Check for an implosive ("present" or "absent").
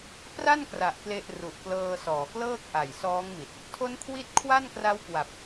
absent